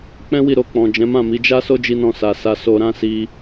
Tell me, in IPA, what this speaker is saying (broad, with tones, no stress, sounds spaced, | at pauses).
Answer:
k͡p ɛ̃˦ w i˦˨ ɾ o˧ k͡p ɔ̃˨ d͡ʒ ɛ̃˨˦ m ã˦˨ m i˨˦ d͡ʒ a˦ s o˦ d͡ʒ i˧ n ɔ̃˧ s a˧ s a˧ s o˧ ɾ ã˦ s i˦